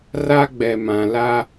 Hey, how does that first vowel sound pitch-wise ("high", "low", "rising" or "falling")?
high